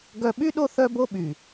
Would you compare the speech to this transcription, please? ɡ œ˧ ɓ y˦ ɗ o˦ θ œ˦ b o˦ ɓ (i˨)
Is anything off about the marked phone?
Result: yes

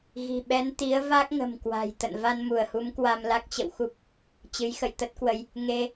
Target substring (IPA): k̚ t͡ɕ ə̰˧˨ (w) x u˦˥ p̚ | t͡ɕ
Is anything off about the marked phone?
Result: no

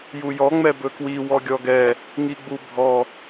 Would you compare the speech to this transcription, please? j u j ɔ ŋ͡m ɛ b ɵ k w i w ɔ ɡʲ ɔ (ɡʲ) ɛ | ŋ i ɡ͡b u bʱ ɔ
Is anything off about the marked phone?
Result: yes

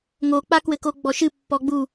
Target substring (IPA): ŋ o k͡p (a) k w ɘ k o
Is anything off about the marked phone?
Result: no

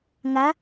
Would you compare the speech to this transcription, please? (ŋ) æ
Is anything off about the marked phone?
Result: no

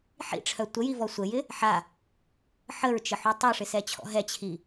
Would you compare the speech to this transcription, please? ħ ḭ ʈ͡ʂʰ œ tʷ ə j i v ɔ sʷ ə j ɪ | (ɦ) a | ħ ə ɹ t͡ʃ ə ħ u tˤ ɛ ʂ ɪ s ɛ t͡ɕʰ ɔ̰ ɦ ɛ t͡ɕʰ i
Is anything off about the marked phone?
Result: yes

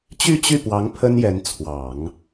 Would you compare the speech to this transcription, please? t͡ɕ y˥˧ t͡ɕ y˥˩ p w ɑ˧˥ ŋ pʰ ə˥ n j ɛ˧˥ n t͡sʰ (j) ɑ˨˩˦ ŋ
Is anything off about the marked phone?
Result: yes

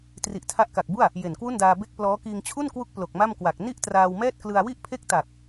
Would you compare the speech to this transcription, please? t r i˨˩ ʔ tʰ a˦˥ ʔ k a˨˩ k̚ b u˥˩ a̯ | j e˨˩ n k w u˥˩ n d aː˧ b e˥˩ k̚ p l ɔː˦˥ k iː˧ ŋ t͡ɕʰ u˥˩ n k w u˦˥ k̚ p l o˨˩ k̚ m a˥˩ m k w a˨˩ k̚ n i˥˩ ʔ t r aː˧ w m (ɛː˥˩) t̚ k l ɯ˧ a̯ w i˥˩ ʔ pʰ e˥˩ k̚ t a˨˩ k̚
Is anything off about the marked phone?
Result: no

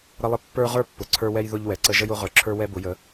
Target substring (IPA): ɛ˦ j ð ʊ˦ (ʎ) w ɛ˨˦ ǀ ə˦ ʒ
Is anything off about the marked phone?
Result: no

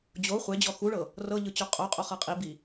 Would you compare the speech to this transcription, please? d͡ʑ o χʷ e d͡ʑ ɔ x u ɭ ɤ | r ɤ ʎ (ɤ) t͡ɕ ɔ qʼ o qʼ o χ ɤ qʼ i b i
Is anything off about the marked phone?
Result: yes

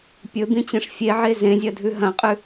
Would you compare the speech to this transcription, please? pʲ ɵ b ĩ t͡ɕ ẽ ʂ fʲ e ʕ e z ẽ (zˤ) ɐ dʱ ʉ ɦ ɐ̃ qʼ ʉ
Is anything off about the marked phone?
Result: yes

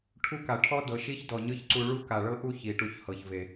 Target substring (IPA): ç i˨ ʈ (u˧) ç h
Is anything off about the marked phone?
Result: no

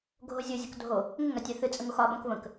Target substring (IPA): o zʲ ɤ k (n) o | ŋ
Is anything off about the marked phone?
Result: yes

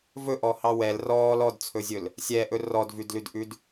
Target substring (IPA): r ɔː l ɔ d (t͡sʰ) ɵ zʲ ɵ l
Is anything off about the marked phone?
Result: no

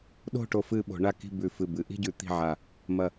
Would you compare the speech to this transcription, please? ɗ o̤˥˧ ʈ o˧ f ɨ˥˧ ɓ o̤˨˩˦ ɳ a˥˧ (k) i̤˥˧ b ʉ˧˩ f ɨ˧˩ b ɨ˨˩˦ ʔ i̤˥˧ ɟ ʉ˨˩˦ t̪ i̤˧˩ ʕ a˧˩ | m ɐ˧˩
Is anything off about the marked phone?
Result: no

